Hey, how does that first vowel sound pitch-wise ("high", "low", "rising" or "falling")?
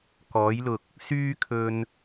rising